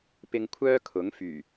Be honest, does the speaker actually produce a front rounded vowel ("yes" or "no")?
yes